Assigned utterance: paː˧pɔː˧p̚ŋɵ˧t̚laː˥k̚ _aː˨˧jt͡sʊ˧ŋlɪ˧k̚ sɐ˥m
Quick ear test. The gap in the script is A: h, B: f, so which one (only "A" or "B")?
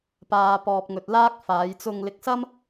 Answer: B